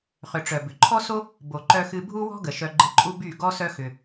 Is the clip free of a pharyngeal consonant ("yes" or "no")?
yes